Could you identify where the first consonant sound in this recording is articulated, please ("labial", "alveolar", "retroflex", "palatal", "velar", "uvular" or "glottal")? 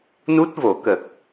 alveolar